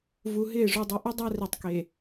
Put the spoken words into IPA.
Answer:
v u˨ ɦ ɪː˦˨ ʐ u˨ dˤ ɪ˨˦ ʔ ʊ˦ dˤ a˦ r i˨ tˤ k e˨

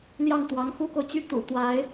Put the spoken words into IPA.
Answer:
l j ɑ˥˩ ŋ t̪ w ɑ˧˥ ŋ x u˥ k o˨ ʊ̯ t͡ɕ y˥ t̪ ṵ˨˩ t̪ w a˧˥ ɪ̯

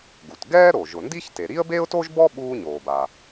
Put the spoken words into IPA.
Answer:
ɡ u˩ t ɡ ɛː˥ ɾ o˩ ʒ ʊ˩ n d i˥ ç t e˩ ɾ i˥ ə̯ b e˥ ʊ̯ t o˥ ʒ b ɔ˥ ɓ uː˥ ɲ oː˩ b a˩

